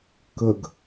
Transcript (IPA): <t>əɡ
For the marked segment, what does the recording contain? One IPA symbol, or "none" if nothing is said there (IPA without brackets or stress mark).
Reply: k